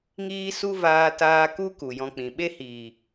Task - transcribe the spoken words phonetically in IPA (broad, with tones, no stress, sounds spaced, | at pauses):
ŋ iː˦ s u˦ v aː˧ t aː˧ k u˦ k u˨ j ɔ̃˧ k͡p ĩ˨ ɓ e˦ h iː˨